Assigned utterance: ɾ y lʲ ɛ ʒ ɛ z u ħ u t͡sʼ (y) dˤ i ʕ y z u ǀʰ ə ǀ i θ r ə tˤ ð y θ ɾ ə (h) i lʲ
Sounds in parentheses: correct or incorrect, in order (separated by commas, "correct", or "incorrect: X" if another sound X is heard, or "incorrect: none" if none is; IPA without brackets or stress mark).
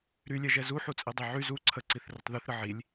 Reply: incorrect: i, incorrect: ʕ